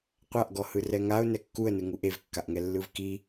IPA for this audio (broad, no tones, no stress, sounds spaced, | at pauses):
qʷ a ʔ ɡ ɔ h ɯ r ɛ ŋ a ʊ̯ n ɛ kː u ə̯ n ɯ ŋ u ʔ e v kː a ʔ ŋ ɛ lː ɯ v k i